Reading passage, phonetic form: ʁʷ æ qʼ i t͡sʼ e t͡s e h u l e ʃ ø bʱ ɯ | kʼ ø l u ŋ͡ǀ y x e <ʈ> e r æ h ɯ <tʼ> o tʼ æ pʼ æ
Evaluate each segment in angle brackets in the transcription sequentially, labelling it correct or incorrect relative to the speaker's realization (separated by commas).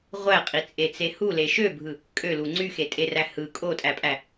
incorrect, incorrect